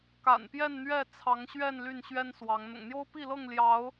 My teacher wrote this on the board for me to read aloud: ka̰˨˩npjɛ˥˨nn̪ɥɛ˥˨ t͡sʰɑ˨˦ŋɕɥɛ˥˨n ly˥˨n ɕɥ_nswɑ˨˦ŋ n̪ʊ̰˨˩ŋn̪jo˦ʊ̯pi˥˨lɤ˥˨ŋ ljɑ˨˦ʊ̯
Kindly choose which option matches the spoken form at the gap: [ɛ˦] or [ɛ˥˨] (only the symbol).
ɛ˦